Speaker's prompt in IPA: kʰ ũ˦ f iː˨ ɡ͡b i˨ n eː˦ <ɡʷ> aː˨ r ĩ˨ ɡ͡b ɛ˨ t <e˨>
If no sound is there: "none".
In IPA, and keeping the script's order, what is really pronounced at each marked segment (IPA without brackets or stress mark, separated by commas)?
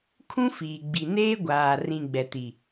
ɡʷ, i˨